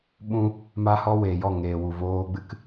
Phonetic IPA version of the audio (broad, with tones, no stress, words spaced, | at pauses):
ɓũ˦ | ma˦hɔ˦weː˨jɔ˦˨ ŋeː˨wu˨voː˧ɡ͡bɨ˦k